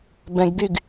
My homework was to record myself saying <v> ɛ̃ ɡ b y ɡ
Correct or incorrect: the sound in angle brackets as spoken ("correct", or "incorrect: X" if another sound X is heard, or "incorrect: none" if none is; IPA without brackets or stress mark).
incorrect: b